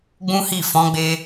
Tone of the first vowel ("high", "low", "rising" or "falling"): high